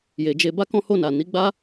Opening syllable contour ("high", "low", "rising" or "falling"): low